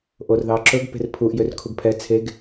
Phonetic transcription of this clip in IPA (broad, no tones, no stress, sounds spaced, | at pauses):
ʔ o r ð ɑ ǁ ɵ ɡ p e̤ r pʰ u ʔ j ø r kʰ u ɡ pʰ ɛ t͡sʰ e ɡ